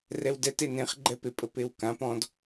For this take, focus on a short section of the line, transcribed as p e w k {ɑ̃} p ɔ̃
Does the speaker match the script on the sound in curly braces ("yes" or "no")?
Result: no